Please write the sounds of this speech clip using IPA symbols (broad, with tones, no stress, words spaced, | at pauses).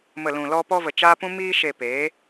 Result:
mə˨ lũ˨lɔ˧pɔ˧ və˨t͡ʃa˦pũ˦ miː˧ʃe˨ peː˨˦